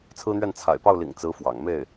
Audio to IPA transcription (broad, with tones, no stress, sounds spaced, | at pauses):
t͡sʰ ɹ̩˥ n̪ ɥ ɛ˥˩ n t͡sʰ a̰˨˩ ɪ̯ p ɑ˥˩ ʊ̯ l ḭ˨˩ ŋ t͡s ɹ̩˧˥ f w ɑ̰˨˩ ŋ m e˥˩ ɪ̯